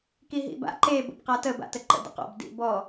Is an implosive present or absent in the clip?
absent